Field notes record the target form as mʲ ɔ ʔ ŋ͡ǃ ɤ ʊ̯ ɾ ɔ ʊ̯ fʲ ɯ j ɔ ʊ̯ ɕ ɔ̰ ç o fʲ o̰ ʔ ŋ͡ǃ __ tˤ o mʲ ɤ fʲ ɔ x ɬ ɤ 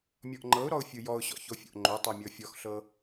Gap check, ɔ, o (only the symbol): o